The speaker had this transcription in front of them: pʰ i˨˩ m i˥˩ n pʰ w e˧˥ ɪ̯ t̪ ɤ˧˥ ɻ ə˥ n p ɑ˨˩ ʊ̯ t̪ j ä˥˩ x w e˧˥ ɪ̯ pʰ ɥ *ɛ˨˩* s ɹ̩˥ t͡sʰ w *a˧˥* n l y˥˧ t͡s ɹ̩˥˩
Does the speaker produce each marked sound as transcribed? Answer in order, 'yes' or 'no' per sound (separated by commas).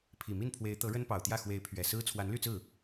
yes, yes